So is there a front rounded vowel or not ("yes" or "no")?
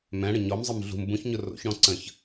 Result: no